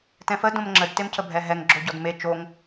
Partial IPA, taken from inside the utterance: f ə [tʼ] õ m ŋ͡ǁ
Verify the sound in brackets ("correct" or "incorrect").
incorrect